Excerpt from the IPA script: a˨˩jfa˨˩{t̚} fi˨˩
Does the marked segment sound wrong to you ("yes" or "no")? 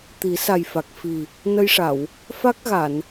yes